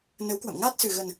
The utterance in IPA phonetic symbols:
n ə˨˦ w k w ə̰˧˨ m ŋ aː˦˥ t̚ s ɨ˨˩ ɣ ə˨˩ n

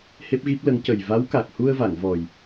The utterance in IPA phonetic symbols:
h e˦˥ p̚ ɣ i˦˥ p̚ l ə˧˥ ŋ c ə˨˩ j v a˧˥ w k a˨˩ k̚ h u˧ ə̯ v a˨˩˨ ŋ v ɔ˨˩ j

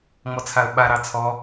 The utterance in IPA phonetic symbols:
ŋ͡m ɔ t͡sʰ a ə̯ ɓ a ɾ ɑ t͡sʰ ɔ

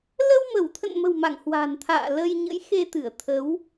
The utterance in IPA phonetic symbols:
l ə˧ w m ə˧˩ w t̪ʰ ə̰˧˨ n m ə̤˨˩ w m a̰˧˨ ŋ h w a̤˨˩ n t̪ʰ a̰ː˧˨ l ə˧ j ɲ ə̰˧˥ j x e˧ t̪ ɨ˧˩ ə̯ t̪ʰ ə˨˦ w

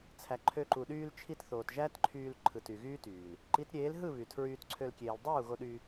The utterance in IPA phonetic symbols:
t͡sʰ æ˨ ǃʰ ø˧ ǃ u˨ ɗ yː˧ l t͡ʃʰ i˧ t θ oː˨ t ʒ æ˦ t ǃʰ yː˧ l ǃʰ ɯ˨ t y˨ ɣ yː˦ t yː˨ l | ǃ i˨˦ t ɾʲ eː˨˦ l ɦ ɯ˦˨ β y˨ tʰ ɹ yː˧ t ǀʰ ø˧ l kʲ eː˨ l dˤ uː˦˨ ɣ o˧ ɗ yː˧

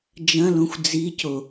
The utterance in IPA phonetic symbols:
d͡ʒ ɐ̃ l õ xʷ d͡z i c o

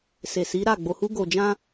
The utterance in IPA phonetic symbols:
s e˨ s i˨˦ ɾ a˦˨ ɡ͡b o˨ h u˧ ɡ o˨ d͡ʒ ã˧

